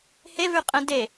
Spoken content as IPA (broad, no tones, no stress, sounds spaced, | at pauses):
h e v ʉ qʼ ɛ̃ d e